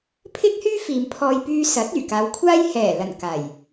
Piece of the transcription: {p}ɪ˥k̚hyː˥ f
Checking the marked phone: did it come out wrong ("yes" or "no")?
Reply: yes